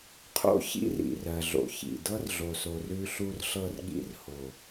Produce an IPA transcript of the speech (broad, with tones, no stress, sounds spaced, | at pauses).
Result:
qʰ o̰˦ ç ḭ˦ r ḭ˨ r ɜ˨ ɮ o̰˨ ç ḭ˨ d ɤ˦ r ɮ o˨ s o˨ r ʉ˧ ɬ u˧ r ɬ ɤ˧ r ɠ ḭ˧ r h o˨